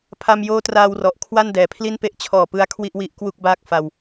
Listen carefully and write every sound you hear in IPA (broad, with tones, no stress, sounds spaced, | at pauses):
pʰ a˧ m j oː˦˥ t r aː˧ w r ɔ˨˩ ʔ kʰ w a˥˩ n d ɛː˩˦ pʰ l i˥˩ n p e˦˥ ʔ t͡ɕʰ ɔː˨˩ p ɯ˧ a̯ kʰ w i˥˩ ʔ w i˦˥ ʔ k w u˥˩ k̚ b aː˥˩ k̚ f a˧ w